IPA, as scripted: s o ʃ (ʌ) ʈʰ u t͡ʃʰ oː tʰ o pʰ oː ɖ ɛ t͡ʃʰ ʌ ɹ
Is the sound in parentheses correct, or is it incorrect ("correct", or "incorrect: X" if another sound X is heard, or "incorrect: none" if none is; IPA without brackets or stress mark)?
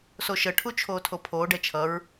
incorrect: ə